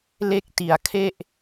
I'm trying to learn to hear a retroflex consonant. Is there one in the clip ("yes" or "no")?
no